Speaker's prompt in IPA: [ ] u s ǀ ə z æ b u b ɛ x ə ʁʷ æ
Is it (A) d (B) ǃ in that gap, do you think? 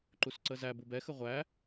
B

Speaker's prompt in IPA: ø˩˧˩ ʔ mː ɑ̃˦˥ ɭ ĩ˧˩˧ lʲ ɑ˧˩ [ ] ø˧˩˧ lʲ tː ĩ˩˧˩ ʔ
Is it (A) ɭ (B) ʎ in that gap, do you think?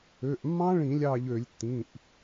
B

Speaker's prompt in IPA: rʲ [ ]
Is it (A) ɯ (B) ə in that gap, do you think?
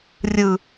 A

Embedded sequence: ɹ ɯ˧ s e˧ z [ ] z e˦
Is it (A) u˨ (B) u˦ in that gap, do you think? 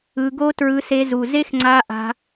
A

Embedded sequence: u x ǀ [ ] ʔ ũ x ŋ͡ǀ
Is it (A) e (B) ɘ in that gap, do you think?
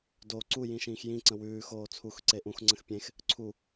A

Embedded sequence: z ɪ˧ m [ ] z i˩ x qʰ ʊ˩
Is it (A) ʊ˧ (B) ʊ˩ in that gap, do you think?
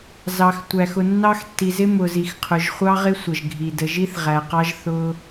B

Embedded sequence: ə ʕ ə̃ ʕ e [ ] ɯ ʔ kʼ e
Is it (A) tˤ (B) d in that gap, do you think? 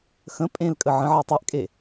A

